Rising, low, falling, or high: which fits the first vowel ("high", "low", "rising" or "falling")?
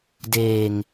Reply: low